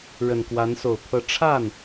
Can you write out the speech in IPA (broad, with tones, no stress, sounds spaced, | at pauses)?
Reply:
ɻ ə˨˩ n k w a˧˥ n s o˨˩ ʊ̯ pʰ ɤ˥˧ ʈ͡ʂʰ a˥˩ n